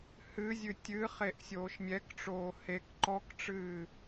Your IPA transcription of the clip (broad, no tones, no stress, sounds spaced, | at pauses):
h ɨ zʲ ɨ tʲ ɨ χ e ʔ sʲ oː ʃ mʲ ɛ k ʈ͡ʂ oː h e k ǃ ɔ k ʈ͡ʂ ɨː